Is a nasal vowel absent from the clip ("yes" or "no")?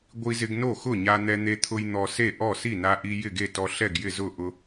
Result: yes